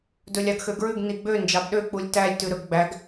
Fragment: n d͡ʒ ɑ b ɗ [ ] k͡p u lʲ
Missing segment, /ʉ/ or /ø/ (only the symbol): ø